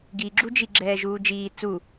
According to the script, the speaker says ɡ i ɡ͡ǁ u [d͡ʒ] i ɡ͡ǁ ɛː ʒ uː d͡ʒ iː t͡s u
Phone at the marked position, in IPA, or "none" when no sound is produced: d͡ʒ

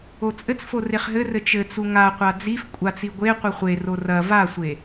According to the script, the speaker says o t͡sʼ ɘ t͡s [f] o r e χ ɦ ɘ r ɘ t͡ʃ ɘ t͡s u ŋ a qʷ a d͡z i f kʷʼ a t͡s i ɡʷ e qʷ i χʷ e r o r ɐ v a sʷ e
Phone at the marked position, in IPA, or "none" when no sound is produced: f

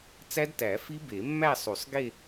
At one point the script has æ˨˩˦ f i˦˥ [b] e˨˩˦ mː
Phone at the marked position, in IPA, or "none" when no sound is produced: b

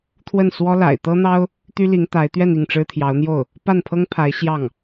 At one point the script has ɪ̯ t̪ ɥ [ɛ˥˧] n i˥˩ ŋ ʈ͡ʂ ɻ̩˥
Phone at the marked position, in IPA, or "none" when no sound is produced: ɛ˥˧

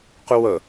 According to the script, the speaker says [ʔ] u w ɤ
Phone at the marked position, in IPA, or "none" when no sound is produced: q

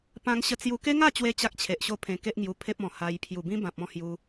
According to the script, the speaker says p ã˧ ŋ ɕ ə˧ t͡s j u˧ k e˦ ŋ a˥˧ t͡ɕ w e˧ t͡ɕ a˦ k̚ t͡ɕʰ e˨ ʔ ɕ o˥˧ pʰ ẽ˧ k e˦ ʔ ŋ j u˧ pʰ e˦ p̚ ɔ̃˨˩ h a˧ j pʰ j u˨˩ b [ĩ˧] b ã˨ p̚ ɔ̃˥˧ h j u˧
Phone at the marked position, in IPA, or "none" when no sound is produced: ĩ˦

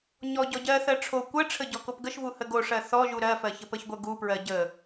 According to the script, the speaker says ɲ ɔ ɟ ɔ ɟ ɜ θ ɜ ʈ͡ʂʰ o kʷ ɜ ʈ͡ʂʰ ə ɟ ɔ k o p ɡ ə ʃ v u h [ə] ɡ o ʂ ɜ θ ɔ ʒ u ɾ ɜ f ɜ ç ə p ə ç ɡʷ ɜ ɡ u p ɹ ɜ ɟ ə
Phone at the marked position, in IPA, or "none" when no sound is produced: ə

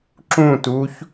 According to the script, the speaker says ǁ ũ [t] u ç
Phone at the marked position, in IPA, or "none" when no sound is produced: t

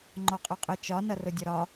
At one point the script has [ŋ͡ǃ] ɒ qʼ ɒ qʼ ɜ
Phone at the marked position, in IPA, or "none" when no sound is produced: ŋ͡ǃ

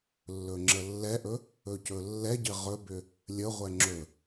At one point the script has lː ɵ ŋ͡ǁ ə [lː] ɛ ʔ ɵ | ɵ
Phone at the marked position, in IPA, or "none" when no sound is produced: lː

